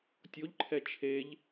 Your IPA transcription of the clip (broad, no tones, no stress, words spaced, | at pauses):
tʲoʎǃʰɛ t͡ʃʰeʎ